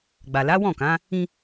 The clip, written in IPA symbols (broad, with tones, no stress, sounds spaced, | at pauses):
ɡ͡b a˨ l a˨˦ w ɔ̃˦˨ k ã˨˦ | ĩ˧